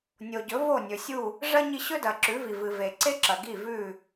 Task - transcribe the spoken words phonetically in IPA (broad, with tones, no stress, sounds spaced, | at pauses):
nʲ o˩ ɟ ɵ˩˥ v o˥˩ nʲ ɵ˩ sʲ u˥˩ | ʐ ɐ˥ ɲ i˧ ɕ ɵ˥ d ɐ˩ ǁ ʉ˩˥ v i˩ v ɨ˩ v e˩ ǀ e˥ ǁ ɐ˩ ɡ i˥˩ v ʉ˥˩